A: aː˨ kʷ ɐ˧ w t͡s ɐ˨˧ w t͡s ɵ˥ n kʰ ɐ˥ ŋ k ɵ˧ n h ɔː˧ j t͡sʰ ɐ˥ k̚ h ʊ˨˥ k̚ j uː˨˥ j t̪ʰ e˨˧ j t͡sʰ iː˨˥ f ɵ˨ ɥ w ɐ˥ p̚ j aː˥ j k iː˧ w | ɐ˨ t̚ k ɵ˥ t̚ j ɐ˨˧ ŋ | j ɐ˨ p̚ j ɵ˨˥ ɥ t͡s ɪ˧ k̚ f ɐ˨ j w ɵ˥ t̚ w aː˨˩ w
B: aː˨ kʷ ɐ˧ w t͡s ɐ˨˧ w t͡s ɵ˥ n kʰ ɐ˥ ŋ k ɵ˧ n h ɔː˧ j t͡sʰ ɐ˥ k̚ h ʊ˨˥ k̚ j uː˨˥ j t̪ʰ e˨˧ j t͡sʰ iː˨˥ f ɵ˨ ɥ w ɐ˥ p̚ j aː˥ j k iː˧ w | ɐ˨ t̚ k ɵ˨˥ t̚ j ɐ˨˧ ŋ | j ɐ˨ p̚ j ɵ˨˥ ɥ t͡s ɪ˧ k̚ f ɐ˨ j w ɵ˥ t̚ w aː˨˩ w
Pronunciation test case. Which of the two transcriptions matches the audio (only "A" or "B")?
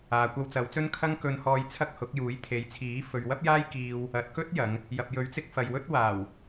A